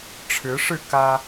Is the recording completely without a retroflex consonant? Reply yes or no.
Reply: no